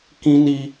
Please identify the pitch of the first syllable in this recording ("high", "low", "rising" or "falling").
high